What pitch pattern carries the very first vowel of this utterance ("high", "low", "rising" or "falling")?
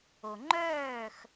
low